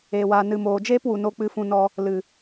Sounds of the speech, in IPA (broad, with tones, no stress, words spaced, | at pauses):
eː˨waː˨ nɨ˨moː˨d͡ʒeː˦pwu˨ no˧k͡pɨ˧fũ˧nɔ˧ | lɨ˨